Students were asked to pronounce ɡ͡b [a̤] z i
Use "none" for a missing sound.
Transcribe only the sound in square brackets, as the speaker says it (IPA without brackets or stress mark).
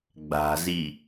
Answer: a̤